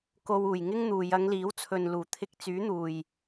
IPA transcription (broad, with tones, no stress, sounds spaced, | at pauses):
k o˧ w uː˨˩ j ŋ ɪ˥ ŋ n̪ uː˨ j ɐ˨˧ ŋ l iː˨˥ w t͡sʰ ɵ˨ n l uː˨˩ t̪ʰ ɪ˧ k̚ t͡s yː˨˥ n̪ uː˨˩ j